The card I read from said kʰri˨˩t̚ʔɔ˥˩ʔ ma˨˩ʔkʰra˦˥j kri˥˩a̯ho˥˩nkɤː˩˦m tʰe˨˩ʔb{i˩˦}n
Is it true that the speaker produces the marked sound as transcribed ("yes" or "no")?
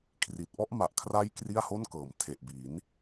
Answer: yes